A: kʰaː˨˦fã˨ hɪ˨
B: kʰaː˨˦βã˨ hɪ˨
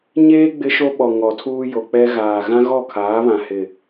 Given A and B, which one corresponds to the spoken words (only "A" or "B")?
B